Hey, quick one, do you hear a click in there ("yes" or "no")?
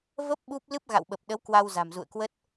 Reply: no